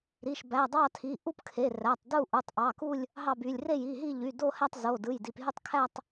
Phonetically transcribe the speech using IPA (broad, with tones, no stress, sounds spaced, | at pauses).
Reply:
ɾ i˩˧˩ ʃ b æ˩˧˩ dˤ ɑ˥˧ tʰ i˩˧˩ ʔ u˥˧ p kʰ e˩˧˩ r æ˩˧˩ tˤ d u˥˧ ʔ u˩˧˩ tˤ ʔ ɑ˩˧˩ k u˥˧ lʲ | ɦ ɑ˥˧ b y˩˧˩ lʲ r e˥˧ j i˩˧˩ ɦ i˥˧ ʎ y˩˧˩ d o˥˧ h æ˥˧ tˤ z o˩˧˩ d ɯ˩˧˩ j d i˩˧˩ p ɦ y˥˧ tˤ kʰ æ˥˧ tˤ